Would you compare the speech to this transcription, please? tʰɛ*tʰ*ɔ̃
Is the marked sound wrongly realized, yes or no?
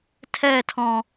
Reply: no